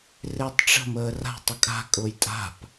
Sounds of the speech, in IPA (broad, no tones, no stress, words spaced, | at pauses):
rɪːtˤʈ͡ʂə̤məː ra̤ tˤʊkʼa̤kʼʊːj tʼa̤p